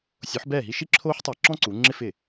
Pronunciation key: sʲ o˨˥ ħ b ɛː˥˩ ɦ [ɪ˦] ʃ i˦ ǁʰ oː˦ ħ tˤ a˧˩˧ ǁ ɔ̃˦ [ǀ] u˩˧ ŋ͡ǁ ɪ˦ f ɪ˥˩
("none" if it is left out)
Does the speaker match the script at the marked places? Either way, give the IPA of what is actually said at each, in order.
i˦, ǀ

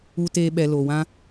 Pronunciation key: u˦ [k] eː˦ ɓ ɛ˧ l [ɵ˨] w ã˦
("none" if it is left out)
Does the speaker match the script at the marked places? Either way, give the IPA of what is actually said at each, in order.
t, o˨

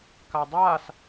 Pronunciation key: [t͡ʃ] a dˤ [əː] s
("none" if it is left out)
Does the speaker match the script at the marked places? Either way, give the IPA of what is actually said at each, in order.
k, aː

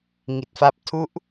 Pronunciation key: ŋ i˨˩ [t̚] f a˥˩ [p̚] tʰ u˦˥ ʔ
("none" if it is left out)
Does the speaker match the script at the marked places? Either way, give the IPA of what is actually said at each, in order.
t̚, p̚

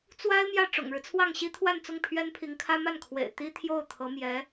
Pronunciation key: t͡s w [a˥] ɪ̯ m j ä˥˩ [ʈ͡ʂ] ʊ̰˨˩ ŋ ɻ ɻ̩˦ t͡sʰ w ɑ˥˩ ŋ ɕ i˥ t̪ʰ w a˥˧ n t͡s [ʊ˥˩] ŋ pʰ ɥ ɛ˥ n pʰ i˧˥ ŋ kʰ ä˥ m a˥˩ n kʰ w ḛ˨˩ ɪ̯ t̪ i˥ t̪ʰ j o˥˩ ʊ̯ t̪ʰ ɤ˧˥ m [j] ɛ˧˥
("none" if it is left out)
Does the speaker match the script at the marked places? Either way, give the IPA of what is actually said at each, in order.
a˥, ʈ͡ʂ, ʊ˥˩, j

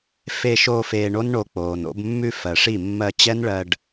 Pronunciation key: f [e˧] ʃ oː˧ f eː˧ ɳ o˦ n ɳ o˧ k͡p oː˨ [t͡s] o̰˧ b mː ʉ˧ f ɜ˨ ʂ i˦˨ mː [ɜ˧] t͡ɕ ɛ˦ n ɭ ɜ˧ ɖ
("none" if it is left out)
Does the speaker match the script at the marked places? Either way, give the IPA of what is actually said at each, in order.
e˧, n, ɜ˧

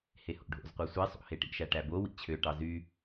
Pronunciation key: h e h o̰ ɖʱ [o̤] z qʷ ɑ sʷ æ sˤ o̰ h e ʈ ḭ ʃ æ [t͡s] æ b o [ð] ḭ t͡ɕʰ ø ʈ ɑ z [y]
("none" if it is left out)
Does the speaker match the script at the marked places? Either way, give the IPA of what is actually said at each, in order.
o̰, ʈ, w, y

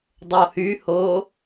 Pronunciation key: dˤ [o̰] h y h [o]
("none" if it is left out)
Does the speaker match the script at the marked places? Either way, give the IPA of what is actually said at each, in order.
o, o

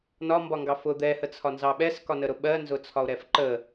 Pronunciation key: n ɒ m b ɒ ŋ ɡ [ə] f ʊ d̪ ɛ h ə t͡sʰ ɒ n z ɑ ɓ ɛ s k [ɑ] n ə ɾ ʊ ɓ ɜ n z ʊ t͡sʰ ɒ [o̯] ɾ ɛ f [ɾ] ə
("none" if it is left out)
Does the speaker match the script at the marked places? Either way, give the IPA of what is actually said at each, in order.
ɑ, ɒ, o̯, ǃ

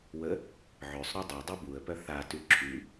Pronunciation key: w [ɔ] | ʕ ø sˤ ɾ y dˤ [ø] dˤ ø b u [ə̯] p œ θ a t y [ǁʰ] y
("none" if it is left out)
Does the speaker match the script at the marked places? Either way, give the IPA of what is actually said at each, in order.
ə, e, ə̯, ǁʰ

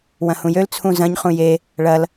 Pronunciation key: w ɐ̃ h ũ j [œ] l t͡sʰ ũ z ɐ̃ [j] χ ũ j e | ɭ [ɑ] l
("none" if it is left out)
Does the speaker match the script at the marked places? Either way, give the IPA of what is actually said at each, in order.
ø, ɲ, ɐ

